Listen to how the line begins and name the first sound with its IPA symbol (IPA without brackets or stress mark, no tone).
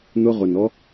n̪